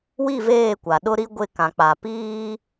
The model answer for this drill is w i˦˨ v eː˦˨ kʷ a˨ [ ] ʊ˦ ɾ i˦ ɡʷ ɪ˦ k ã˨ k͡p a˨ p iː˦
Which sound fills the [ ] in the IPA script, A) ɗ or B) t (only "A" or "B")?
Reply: A